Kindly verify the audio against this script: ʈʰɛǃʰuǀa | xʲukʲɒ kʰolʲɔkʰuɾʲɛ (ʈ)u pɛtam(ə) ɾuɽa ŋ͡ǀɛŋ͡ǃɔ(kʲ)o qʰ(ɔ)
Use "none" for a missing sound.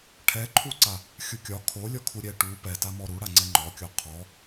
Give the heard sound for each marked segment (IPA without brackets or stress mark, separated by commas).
ʈ, ɔ, kʲ, ɔ